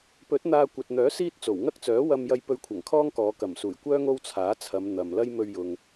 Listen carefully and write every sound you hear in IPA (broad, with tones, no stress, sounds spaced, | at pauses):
p ɵ˨˥ t̚ n̪ aː˧ kʷ ɐ˨ t̚ n̪ œː˨˥ s iː˥ t̚ t͡s o˨˩ w ŋ ɐ˥ k̚ t͡s œː˨˥ w ɐ˧ m j ɐ˧ j p ɵ˧ ɥ kʷʰ ɐ˨˩ ŋ kʰ ɔː˥ ŋ k ɔː˨˧ k ɐ˨˩ m s uː˨˩ j kʷ œː˥ ŋ o˥ w t͡sʰ aː˨˥ t͡sʰ ɐ˨˧ m n̪ ɐ˨ m l ɐ˥ j m ɵ˧ ɥ j ʊ˨ ŋ